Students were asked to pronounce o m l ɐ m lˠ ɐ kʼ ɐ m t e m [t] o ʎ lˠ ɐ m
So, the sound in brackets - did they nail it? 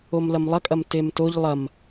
yes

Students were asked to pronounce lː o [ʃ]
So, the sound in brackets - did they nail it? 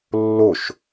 yes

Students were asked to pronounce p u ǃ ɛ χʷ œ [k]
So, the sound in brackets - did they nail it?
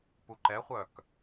yes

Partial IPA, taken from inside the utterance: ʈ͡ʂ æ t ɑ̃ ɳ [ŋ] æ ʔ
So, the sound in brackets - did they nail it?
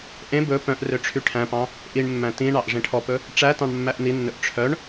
no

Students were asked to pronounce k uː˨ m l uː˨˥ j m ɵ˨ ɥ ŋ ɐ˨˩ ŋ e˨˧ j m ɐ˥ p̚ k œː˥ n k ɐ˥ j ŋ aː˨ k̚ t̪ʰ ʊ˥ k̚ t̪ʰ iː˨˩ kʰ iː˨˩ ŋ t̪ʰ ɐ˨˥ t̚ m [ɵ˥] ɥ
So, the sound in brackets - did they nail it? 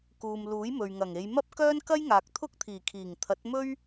yes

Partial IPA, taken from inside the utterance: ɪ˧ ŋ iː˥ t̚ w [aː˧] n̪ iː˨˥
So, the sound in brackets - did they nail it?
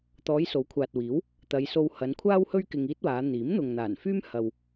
no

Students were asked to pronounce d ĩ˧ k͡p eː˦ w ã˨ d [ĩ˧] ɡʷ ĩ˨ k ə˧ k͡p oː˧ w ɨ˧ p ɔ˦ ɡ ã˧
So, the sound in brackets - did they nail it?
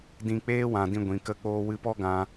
yes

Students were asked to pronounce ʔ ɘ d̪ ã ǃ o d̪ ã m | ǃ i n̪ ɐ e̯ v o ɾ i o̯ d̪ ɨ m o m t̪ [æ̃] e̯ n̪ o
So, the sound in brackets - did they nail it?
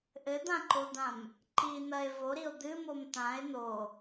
no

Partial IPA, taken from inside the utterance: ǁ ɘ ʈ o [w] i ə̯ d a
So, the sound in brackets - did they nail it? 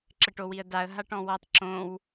yes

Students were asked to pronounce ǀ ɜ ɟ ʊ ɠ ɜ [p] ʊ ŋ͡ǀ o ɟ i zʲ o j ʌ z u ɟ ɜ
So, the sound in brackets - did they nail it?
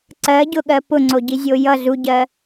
yes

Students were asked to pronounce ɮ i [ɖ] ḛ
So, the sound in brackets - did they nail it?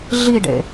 yes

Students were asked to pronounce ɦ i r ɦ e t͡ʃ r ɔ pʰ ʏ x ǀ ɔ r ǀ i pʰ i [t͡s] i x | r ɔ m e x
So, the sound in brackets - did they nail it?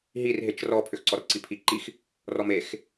no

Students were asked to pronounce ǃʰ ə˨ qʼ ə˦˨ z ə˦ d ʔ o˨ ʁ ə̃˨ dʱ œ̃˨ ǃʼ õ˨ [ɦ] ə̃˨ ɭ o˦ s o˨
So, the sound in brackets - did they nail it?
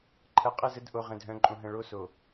yes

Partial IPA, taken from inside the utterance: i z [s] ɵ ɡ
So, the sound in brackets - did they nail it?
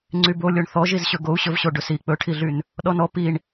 no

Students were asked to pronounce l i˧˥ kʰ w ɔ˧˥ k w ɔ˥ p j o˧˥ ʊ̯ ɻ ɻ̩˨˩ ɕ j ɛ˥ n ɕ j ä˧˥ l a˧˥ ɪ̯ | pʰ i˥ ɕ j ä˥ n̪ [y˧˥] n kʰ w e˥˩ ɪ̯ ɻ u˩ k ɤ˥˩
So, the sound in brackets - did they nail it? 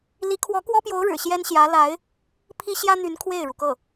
yes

